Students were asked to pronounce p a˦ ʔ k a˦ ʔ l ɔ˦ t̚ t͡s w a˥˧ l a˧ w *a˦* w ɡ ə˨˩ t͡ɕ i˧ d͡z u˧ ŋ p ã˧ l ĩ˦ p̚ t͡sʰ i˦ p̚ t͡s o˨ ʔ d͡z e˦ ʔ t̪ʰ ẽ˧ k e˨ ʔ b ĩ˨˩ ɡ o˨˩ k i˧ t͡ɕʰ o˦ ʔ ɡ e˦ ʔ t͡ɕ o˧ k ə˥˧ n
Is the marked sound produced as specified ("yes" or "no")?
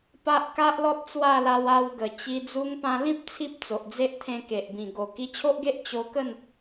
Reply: no